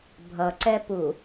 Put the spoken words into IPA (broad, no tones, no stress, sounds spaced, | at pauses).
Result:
bʱ ʌ ǀ ɛ p u